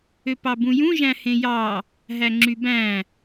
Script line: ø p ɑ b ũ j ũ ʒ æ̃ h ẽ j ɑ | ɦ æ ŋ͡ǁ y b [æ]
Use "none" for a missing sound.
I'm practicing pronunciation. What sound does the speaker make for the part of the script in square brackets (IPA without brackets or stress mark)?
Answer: æ̃